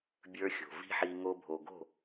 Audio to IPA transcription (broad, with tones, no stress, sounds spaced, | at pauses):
bʲ ə˞˧ xʲ o̤˨ v i̤˦ ħ i˧ ŋ o˧ bʱ o˨ ɡ o̤˦˨